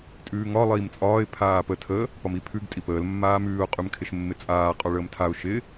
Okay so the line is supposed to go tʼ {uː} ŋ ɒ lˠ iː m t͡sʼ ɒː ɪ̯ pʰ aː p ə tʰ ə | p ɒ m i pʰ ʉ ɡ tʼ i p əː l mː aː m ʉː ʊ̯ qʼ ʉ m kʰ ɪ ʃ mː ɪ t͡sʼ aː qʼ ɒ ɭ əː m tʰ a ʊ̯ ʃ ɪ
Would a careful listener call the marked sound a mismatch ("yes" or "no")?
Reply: yes